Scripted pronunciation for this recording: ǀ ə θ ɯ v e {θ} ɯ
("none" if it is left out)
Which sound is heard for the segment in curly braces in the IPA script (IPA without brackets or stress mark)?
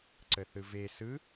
s